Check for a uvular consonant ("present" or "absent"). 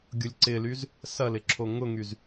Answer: absent